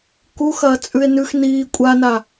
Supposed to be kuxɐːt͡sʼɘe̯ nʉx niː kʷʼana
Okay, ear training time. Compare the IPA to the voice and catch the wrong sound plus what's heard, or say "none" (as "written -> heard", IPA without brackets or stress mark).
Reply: ɘ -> ʉ